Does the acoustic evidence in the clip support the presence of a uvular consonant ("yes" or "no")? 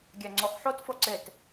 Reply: yes